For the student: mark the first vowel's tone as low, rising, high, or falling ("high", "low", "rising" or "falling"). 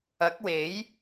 rising